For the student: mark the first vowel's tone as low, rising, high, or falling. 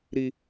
high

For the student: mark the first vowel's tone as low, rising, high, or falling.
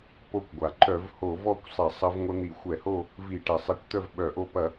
falling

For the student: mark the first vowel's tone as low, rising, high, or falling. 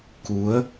rising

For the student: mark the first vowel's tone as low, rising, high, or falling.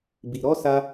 low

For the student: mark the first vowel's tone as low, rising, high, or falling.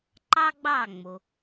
high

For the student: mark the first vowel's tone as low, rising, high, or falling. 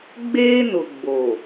high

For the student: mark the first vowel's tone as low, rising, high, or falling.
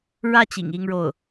falling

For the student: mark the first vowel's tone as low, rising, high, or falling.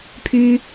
high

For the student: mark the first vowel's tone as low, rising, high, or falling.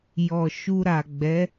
low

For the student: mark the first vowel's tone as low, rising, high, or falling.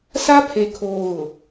high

